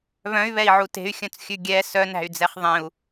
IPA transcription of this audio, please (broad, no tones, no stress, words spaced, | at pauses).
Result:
βœ̃y̯βɛi̯ʕu te̤y̯xʲœ̃t͡sxʲʉ ɡʲɛ sœnæ̤y̯d͡zɛχ ðˤẽu̯